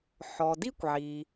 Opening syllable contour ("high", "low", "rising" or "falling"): low